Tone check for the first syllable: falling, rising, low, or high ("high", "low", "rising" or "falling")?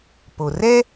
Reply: low